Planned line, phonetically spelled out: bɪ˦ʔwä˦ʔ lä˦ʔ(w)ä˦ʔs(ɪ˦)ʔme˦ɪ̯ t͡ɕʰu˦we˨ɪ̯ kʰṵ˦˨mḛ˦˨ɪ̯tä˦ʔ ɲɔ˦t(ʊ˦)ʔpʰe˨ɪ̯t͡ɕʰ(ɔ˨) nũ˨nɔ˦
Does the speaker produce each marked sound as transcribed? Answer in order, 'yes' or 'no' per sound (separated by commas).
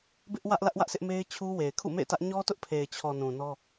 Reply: yes, yes, yes, yes